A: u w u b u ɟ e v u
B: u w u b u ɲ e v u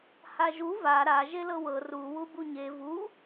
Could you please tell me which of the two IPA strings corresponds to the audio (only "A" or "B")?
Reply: B